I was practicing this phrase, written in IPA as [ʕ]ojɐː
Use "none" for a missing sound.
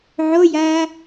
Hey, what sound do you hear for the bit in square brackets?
ʕ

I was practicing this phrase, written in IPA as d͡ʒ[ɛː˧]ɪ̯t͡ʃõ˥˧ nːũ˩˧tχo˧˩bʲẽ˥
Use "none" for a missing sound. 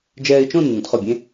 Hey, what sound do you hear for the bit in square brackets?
ɛː˧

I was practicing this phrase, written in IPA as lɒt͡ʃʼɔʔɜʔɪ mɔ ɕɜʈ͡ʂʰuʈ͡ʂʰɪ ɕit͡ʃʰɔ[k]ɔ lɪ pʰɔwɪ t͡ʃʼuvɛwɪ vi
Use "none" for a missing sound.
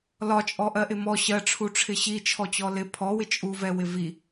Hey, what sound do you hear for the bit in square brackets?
t͡ɕ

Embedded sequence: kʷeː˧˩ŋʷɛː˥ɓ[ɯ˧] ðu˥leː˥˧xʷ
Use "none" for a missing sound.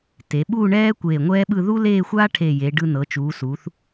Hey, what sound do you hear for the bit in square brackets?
ɯ˥˧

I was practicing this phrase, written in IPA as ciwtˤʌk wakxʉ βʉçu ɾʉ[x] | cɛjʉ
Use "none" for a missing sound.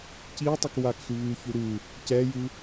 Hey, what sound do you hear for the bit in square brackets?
none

